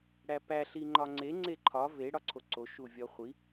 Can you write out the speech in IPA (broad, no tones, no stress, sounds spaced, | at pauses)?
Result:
ɽ æ p æ ɬ i ŋ͡ǃ ɒ ŋ͡ǀ e ŋ͡ǀ e ǃʰ ɒ v e ɽ ɒ ǀʰ o ǀ o ʃ u vʲ ɒ χʷ i